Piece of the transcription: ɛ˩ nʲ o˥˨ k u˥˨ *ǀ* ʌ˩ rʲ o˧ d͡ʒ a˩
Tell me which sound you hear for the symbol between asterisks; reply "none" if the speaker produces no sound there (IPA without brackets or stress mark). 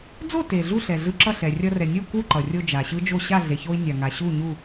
ǃ